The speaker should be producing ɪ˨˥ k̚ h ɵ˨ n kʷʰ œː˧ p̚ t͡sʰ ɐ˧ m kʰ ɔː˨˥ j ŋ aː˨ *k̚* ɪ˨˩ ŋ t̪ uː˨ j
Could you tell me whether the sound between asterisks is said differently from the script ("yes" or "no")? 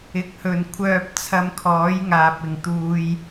yes